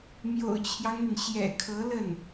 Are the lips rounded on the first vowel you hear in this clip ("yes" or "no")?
yes